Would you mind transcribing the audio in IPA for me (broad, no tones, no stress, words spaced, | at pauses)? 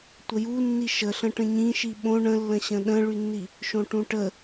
tʷəjunːi ʃəɬə̃ ʈə̃ɲĩ ʃiɓõ ɳə̃lːə̃ɕə̃ ɗə̃ɭynːi | ʃõʈũʈə